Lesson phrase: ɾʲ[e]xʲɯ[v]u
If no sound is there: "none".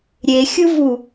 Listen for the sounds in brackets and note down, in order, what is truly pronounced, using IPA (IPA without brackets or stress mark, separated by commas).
e, v